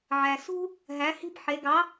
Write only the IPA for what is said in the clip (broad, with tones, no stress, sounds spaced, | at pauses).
ʕ æ˨ s ṳ˦ | ɦ æ˨˦ h i̤˦ b ħ e˨˦ ɡ ɑ˨˦